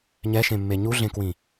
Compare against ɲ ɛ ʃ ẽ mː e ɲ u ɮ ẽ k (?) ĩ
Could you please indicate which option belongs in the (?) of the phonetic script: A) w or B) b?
A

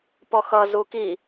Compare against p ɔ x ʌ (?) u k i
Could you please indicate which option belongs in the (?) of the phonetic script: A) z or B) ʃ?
A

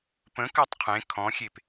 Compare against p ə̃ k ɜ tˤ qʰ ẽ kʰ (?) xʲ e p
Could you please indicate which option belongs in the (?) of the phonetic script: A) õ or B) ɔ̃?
B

